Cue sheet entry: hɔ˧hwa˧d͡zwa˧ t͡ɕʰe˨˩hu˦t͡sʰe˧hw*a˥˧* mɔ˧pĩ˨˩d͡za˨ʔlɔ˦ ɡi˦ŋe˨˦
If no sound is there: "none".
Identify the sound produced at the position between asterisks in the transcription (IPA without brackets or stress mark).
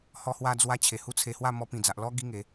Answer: a˥˧